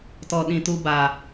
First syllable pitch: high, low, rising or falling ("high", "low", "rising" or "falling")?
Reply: low